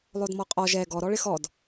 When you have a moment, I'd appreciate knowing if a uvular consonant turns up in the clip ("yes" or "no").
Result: yes